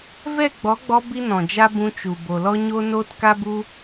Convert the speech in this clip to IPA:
vɛ˦˨ɡ͡bɔ˨˦ɡ͡bɔ˧ bi˦nɔ̃˨d͡ʒa˦ bũ˧t͡ʃu˨ bo˨lɔ˦ɲo˦ noː˦tka˦bu˦

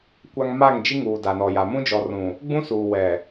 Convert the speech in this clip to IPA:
kʷa˨ŋ ma˦˨ŋd͡ʒi˦ ŋuː˨da˨nɔ˨ja˨ mũ˦d͡ʒɔ˨rũ˨ | ɡ͡bũ˦suː˨ wɛ˨

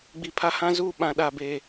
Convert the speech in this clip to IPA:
ɡ͡bi˨pʰa˦hã˦zuː˦˨ ɓã˨ɗa˨beː˨

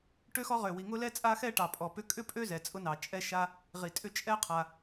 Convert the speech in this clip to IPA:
ʈø˥xɔ˥ʁø˩wi˩ ŋʊ˥lɛ˥ t͡sʼa˥xɛ˥ ʈɑ˩pʼɔ˩pʏ˥ kʼʏ˥pʼø˥ zɛ˩t͡sʼʊ˥nɑ˩t͡ʃʼɛ˥ ʃa˥ | ʁi˩tʼʏ˥ t͡ʃʼɛ˥qʰa˩

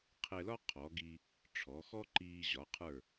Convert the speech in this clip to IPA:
qʰɛ˧lɒ˥ qʰɔ˩˧ɡi˧ | ʈ͡ʂʰɔ˩˧xɔ˥ ǃiː˧ ʑɒ˩˧qʰə˞˧˩

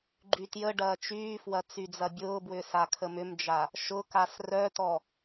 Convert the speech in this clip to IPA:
ɡ͡ǃytjəɖɐː t͡ʃyːfwɐ t͡syd͡zɐbʲʊːbwʏ sakʰəmʏmd͡ʒa | ʃʊkas rœtɔ

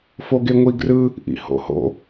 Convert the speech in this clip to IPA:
foɡeŋʷiɡrɯ | ʔḭho̰ho̰

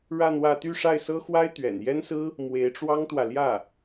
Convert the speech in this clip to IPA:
ɻa˥˧nwä˥˧ t̪y˥˧ʂa˥˩ɪ̯sɤ˥xwa˥ɪ̯ t̪ɥɛ̰˨˩njɛ˥nsɹ̩˥ | mwe˧˥ɪ̯ʈ͡ʂwɑ˥ŋt̪wä˨ ljä˥˩

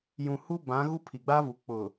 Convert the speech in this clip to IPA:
jũ˨ hu˦bã˨˦ ɣu˦pʰi˨ɡ͡ba˦vu˨ k͡pʊ˨

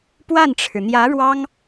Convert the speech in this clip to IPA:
pwa˥˩nʈ͡ʂʰɻ̩˩n̪jä˧˥ɻwɑ˥ŋ

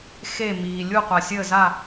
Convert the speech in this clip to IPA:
xe˥˨miː˨ lʲu˥˨qʷa˨sʲəː˥˨za˥˨

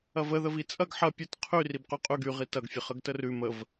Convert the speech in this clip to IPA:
ɐvə ðəvit͡sʼɐɡ ħɐ pʲət qʰy ribqʉqʼʉɡ y ʁitɐɡ fʲəχəɡtərʉ məv

